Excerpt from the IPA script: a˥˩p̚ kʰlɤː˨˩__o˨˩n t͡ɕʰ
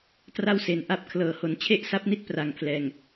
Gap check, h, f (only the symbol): h